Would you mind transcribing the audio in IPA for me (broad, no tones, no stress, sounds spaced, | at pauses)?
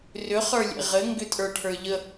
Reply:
r ʏ χ ə˞ lʲ ḛ ʁ ɘ ŋ ɡ ʏ tʼ ə˞ ʈʰ ə˞ ʎ ə